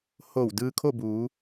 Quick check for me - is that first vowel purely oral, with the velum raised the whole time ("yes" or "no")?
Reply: yes